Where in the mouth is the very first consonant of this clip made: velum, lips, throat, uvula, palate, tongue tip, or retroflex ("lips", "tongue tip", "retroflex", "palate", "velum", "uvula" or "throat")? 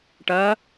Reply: retroflex